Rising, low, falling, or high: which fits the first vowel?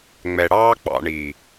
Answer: low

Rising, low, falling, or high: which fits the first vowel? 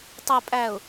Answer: low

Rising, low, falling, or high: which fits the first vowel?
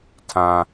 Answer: low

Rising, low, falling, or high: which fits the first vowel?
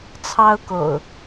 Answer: high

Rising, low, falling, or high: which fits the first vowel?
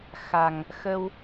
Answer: low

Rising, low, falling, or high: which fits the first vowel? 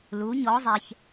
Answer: rising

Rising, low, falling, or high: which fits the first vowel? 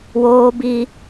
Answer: high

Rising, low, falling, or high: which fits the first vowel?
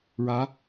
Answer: rising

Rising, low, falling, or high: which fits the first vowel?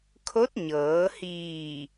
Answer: rising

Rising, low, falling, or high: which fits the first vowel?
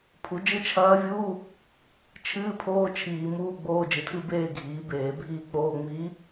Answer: rising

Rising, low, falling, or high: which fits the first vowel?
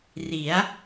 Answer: rising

